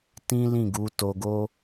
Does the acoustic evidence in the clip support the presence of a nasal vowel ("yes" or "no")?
yes